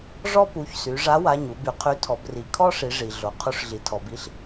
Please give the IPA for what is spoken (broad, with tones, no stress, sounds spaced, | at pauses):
ʐ ɔ˥ p u˩˧˩ ç s y˩˧ ʐ a˨˥ w a˩˧˩ ɲ u˩˧ b y˩˧ qʰ y˨˥ tʰ ɔ˩˧ b r i˩˧ kʰ ɔ˥ ʂ i˩˧ ʐ i˩ ɮ o˩ qʰ u˨˥ ʂ ɮ i˩ tʰ ɔ˩ b i˨˥ ɬ